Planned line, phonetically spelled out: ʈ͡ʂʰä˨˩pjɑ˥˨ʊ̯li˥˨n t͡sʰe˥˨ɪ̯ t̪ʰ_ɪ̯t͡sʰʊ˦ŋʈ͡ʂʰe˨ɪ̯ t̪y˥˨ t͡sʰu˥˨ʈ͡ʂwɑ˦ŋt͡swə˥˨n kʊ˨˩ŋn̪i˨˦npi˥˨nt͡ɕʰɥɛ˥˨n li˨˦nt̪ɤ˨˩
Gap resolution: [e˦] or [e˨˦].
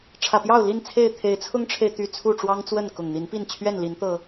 e˨˦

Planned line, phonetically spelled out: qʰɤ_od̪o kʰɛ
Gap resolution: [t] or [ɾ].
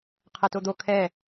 t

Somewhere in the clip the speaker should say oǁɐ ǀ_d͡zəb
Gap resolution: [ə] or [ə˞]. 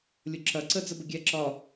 ə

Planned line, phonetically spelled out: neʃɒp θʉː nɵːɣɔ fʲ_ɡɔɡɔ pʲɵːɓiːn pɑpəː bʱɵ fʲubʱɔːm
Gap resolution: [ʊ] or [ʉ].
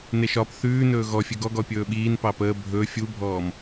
ʉ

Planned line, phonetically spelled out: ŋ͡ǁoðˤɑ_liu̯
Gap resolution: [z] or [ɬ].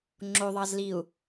z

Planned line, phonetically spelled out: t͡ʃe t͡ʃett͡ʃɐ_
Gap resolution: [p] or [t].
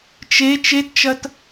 t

